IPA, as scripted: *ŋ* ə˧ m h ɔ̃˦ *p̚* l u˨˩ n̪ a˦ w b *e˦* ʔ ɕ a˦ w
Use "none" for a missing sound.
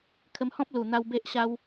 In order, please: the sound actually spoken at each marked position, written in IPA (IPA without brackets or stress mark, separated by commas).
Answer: kʰ, p̚, e˦